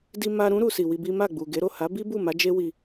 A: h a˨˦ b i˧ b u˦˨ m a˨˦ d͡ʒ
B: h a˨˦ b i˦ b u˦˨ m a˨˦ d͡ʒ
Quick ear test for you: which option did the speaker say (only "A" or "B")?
B